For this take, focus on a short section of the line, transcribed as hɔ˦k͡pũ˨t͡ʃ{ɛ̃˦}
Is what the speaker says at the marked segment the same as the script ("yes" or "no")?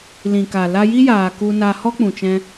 no